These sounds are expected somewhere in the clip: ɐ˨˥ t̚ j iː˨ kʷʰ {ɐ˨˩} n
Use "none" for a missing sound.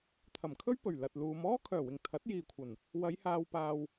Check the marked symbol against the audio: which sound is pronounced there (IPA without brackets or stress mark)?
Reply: ɐ˨˩